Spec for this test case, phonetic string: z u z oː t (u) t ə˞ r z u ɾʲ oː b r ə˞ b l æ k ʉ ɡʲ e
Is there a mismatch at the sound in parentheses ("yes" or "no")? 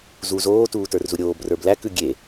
yes